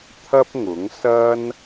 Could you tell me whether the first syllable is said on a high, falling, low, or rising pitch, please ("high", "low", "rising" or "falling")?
high